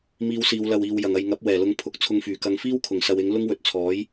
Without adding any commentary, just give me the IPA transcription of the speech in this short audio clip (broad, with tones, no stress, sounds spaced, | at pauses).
m iː˧ w s iː˨˧ w l ɐ˨ w iː˨ w j ɐ˨˩ ŋ ɐ˨ j ŋ ɐ˨˥ p̚ w ɛː˨˩ l ʊ˨˧ ŋ pʰ ʊ˨˥ k̚ t͡sʰ ʊ˧ ŋ f yː˨˩ k ɐ˧ ŋ f iː˥ w kʰ ʊ˨˩ ŋ s ɐ˧ w ɪ˨˥ ŋ l ʊ˥ ŋ w ɵ˨˥ t̚ t͡sʰ ɔː˨˥ j